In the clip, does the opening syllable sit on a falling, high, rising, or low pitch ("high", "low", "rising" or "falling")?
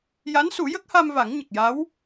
rising